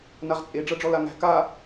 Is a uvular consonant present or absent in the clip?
present